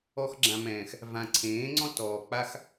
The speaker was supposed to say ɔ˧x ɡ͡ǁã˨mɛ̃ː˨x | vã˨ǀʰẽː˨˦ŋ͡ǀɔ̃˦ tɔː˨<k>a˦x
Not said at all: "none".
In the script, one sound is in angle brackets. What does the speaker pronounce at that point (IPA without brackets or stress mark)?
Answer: k͡p